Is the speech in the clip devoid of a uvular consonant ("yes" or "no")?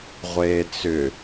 no